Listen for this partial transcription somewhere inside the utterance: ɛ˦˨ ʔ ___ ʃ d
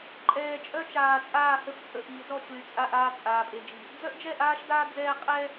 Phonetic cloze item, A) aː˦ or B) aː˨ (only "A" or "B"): A